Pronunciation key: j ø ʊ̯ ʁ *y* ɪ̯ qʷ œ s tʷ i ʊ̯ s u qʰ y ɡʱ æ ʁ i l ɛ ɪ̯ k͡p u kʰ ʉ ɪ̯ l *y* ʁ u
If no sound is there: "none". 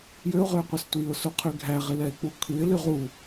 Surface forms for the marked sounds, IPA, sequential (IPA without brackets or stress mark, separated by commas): ø, y